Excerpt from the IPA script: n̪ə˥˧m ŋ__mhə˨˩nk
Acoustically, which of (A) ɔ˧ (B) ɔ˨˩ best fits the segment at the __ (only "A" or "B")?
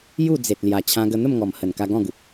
B